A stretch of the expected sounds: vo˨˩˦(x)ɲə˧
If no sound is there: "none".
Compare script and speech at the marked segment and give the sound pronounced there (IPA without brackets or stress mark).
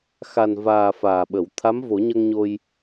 none